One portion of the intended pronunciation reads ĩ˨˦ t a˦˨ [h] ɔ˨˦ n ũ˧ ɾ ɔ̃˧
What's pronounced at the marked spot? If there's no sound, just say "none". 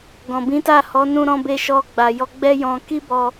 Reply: h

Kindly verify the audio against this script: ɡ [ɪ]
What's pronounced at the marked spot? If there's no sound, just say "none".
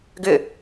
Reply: ʏ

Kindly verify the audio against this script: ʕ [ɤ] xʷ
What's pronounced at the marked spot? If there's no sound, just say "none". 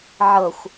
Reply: ɤ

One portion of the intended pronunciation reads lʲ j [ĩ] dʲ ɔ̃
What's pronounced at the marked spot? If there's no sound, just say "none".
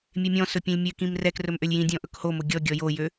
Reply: ĩ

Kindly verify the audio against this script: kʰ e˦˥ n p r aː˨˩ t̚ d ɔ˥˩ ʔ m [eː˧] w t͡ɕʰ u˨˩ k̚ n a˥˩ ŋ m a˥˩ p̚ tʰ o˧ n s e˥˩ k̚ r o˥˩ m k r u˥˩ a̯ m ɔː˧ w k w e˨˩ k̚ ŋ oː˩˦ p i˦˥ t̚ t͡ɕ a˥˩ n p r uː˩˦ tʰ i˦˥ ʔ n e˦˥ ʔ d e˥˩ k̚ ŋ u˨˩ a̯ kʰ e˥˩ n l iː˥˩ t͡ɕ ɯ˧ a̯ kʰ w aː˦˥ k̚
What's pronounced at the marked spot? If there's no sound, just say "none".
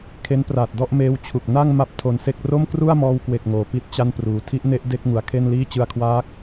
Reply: eː˧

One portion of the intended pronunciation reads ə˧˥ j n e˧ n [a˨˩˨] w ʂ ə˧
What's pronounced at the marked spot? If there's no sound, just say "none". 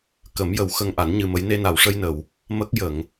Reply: a˨˩˨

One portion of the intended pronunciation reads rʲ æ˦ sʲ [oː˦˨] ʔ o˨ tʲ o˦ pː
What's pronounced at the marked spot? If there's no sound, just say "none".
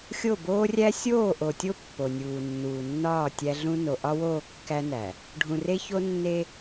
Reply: oː˦˨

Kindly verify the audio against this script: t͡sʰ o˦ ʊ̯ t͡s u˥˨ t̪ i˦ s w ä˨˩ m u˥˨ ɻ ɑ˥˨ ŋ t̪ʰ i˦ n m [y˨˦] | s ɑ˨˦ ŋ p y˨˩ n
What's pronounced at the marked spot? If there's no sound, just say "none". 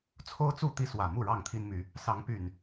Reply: y˨˦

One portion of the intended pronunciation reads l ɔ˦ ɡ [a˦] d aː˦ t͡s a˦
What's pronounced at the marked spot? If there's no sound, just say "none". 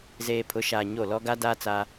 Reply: a˦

